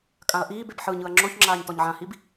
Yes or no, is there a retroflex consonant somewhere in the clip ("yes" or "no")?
no